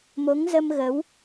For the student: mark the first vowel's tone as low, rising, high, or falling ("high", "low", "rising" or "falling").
rising